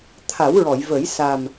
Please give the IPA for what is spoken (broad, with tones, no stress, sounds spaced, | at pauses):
t̪ʰ a˨˩˦ w ɹ ɔ˨˩˨ j v ə˨˩˦ j s a˨˩ m